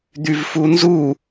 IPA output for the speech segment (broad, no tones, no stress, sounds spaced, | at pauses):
d̪ y v f u n z u